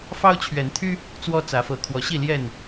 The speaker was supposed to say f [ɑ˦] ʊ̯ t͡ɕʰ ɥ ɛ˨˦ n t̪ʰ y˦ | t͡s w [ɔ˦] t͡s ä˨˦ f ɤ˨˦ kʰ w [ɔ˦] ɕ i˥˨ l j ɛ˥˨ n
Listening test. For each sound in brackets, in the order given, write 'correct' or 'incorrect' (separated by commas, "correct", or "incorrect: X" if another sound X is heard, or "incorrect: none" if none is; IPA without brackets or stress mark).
correct, correct, incorrect: ɔ˨˦